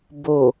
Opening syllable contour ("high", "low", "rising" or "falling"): low